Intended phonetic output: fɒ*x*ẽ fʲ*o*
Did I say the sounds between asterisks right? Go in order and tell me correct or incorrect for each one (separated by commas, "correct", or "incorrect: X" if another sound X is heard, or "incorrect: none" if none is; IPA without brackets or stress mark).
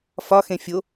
correct, correct